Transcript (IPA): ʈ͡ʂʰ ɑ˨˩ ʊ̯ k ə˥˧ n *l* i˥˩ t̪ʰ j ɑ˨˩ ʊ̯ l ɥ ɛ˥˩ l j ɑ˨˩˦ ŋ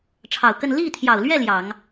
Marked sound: correct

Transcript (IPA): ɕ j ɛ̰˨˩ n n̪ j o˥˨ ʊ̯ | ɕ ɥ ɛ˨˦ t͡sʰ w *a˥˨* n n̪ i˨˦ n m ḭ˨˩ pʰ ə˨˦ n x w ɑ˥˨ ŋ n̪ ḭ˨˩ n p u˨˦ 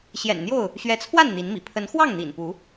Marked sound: correct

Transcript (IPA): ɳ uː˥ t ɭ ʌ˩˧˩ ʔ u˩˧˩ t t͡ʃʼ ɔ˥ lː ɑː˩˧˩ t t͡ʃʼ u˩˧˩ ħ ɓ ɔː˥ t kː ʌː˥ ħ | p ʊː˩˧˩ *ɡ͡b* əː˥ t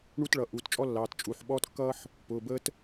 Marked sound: incorrect: b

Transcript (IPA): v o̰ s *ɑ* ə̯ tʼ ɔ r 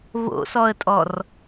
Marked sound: incorrect: ɔ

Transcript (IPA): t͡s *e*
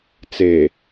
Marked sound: correct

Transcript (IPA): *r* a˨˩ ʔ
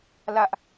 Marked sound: incorrect: l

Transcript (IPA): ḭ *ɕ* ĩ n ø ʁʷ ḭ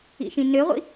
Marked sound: incorrect: ʃ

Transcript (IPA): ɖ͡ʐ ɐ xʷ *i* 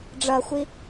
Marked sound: correct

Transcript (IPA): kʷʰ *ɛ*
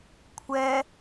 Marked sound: correct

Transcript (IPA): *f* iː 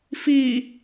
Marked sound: correct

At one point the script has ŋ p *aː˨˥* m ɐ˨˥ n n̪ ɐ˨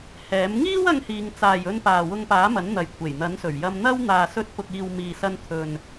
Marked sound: correct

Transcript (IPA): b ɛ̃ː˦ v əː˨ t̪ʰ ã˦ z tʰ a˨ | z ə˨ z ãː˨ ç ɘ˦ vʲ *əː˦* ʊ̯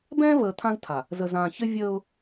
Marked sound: correct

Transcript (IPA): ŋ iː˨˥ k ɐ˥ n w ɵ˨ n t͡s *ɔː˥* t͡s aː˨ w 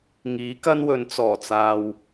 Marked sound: incorrect: ɔː˨˩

